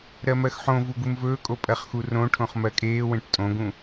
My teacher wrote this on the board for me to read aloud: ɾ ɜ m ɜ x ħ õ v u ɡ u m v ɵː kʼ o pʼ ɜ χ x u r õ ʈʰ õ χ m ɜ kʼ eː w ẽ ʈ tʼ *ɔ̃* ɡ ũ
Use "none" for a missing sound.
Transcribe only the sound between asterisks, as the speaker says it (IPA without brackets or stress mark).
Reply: õ